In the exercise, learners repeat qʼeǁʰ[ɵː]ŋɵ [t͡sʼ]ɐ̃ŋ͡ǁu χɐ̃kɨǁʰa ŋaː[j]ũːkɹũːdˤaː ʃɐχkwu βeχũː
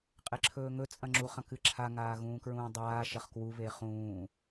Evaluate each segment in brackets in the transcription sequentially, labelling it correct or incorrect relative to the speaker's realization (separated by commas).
correct, correct, incorrect